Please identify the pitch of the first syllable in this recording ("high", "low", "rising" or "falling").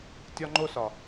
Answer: high